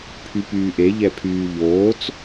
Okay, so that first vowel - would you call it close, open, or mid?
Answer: close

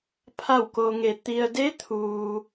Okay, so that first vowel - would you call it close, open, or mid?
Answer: open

